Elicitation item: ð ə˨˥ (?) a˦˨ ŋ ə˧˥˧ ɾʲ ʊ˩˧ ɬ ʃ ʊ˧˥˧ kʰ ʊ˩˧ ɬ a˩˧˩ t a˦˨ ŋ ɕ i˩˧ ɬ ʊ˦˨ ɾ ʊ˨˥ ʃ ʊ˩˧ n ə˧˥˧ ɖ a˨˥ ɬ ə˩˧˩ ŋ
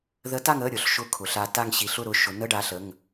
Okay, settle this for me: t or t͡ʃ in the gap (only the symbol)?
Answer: t